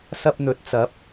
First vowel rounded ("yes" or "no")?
no